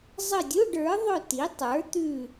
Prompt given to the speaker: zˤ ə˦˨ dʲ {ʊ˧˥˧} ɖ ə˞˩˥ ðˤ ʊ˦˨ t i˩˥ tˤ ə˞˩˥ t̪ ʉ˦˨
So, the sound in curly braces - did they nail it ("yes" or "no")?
yes